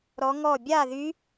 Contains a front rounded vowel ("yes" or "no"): yes